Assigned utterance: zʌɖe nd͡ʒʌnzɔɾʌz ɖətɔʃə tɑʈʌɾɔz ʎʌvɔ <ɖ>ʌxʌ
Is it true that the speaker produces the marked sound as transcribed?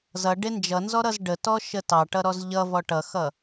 no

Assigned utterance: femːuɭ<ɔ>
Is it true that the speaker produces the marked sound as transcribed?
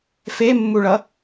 no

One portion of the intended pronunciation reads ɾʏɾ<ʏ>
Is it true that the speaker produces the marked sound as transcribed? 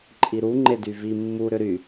no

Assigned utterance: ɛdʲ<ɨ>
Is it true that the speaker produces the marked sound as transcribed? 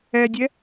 no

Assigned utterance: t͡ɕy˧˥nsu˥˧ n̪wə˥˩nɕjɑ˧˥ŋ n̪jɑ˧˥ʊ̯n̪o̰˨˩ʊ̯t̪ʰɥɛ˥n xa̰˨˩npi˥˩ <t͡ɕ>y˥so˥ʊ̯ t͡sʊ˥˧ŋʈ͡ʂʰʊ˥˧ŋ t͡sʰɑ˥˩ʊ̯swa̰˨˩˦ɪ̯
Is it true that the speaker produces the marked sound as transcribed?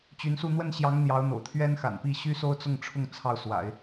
no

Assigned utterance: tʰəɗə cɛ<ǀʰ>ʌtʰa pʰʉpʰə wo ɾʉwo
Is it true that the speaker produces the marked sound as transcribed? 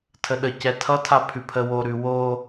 no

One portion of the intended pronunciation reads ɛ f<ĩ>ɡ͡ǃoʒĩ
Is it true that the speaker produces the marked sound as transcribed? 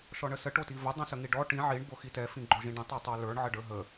yes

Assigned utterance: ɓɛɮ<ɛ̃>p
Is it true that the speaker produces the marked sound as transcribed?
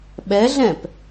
yes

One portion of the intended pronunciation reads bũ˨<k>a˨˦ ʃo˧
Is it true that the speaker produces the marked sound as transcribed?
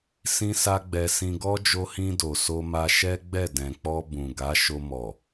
no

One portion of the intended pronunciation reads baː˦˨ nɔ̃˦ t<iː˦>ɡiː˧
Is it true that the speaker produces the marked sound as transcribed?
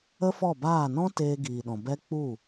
no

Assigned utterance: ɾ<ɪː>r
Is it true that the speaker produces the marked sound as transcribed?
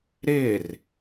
yes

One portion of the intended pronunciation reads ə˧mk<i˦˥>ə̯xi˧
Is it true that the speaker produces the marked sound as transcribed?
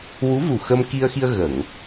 no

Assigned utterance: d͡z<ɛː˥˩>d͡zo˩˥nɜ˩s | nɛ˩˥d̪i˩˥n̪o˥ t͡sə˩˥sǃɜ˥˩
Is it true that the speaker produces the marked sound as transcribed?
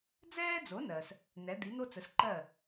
no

